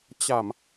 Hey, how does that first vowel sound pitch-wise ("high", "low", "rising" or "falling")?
low